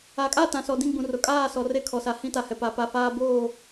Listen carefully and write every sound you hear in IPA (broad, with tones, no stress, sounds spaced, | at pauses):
a˨ kʼ a˦˨ t ã˨ s ɔ˨ d ĩ˦˨ ɡ͡b ũ˨ r ʊ˨ kʼ aː˦˨ s ɔ˨ r e˦ kʰ ɔ˨ s a˨ h ĩ˦ t a˨ h ɛ˨ p a˨ p a˨ f aː˦ b oː˦˨